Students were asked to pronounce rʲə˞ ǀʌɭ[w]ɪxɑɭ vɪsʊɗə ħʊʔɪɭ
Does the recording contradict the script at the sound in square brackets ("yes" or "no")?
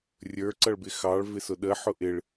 yes